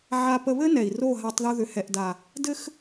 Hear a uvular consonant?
no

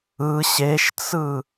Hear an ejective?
no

